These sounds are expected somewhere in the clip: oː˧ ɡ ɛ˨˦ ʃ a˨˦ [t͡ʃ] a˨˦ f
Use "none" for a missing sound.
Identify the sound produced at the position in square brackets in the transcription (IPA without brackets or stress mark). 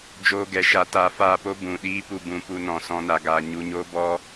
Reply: t